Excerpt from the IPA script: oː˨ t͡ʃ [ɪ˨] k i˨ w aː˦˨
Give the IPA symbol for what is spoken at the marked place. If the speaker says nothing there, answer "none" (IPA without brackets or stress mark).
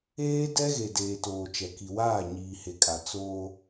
ɛ˨